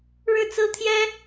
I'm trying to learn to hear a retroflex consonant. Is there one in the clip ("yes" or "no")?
yes